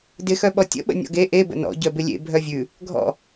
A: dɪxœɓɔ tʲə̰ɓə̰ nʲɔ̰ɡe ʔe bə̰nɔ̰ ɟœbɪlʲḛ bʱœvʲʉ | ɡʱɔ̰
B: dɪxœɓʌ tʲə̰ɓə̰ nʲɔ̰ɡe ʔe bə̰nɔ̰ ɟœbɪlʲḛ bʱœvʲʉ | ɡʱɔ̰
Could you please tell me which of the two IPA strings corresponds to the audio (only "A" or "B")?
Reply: A